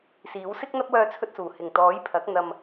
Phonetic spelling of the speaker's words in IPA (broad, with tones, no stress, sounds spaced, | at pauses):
s iː˨˥ w s ɪ˥ k̚ n̪ ɐ˥ p̚ w œː˧ t͡sʰ ɵ˧ t̚ s uː˨˩ h ɪ˨˩ ŋ t̪ ɔː˨˥ j pʰ ɐ˨˥ k̚ n̪ ɐ˧ m